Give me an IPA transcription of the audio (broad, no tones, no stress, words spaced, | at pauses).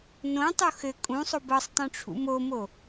nõtˤo xɘ kʼũsˤob ɤsˤtˤõʈ͡ʂʰṵ momo